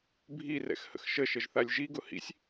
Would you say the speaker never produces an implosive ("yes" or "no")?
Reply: yes